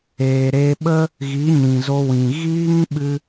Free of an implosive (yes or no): no